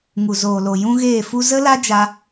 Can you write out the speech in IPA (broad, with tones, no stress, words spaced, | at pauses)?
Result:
ŋu˨zoː˨lo˨ jũ˦ɣeː˦˨fu˦ zə˦la˦ d͡ʒa˧